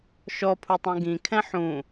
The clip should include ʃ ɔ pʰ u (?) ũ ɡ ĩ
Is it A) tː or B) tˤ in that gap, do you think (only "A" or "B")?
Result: B